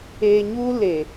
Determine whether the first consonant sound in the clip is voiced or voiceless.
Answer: voiced